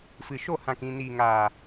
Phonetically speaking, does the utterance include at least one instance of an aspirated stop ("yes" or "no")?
no